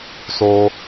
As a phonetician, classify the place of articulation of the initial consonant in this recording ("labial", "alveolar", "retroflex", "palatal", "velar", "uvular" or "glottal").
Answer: alveolar